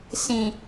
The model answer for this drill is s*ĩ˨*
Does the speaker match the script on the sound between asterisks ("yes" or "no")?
yes